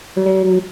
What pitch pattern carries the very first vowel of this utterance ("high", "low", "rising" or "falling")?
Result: low